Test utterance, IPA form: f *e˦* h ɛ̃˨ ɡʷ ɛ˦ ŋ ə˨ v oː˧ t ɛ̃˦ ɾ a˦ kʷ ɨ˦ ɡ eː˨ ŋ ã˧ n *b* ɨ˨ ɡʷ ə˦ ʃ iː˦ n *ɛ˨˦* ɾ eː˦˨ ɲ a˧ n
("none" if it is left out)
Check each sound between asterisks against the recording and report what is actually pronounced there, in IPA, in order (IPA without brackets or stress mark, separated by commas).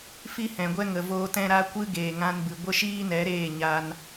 i˦, b, ɛ˨˦